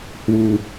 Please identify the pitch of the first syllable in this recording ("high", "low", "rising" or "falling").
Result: low